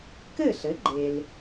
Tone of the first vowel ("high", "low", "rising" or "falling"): falling